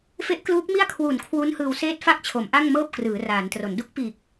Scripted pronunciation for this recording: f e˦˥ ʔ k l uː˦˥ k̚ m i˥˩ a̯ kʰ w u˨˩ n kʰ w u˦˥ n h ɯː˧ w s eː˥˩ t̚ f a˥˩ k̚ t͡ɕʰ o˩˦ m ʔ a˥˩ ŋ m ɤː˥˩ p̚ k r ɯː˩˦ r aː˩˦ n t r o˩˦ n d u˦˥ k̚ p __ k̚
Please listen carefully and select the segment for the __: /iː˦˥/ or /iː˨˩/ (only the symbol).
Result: iː˨˩